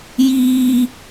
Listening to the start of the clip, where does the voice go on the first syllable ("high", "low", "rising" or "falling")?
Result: high